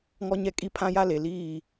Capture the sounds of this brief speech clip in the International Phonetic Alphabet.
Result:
ŋɔ˦ɲɛ˦ kʼi˦pʰã˦ja˦ le˨liː˦˨

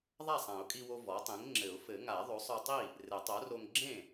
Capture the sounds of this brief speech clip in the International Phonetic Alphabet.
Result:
ðˤa˥˩sˤã˨˩˦ʊ̯kʼi˧wo˧ vɔ˩˥tˤẽ˩˥ŋ ŋ͡ǁɘ˨˩˦ʊ̯fɘ˨˩˦ŋa˨˩˦ðˤo˩˥sˤ ɔ˧tˤi˥˩ | rɘ˨˩˦tˤo˩˥ro˧ŋ ɡ͡ǁẽ˥˩

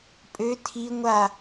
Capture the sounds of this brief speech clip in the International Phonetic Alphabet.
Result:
pʼø tʰi ŋʷa

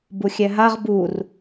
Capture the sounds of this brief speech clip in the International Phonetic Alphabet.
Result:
buxʲɛɦaʁ bur

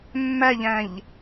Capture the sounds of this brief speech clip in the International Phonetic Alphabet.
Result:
mːæʎæ̃ʎ

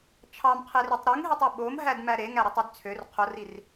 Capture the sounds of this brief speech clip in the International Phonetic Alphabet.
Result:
t͡ʃʰɑmqʰerytˤ ɾuŋɦetˤe ɓomɦædmæ ɾeŋæɾɯtˤyd t͡sʰør qʰorir

